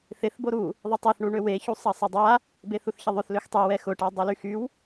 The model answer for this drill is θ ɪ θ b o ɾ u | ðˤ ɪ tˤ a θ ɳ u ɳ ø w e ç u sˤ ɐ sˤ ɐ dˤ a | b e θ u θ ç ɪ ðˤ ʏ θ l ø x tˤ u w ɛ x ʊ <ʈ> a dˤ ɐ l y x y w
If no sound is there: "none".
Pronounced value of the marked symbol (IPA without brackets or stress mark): ʈ